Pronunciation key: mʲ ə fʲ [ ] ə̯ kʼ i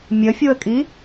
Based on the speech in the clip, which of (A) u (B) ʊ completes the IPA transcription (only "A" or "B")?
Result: A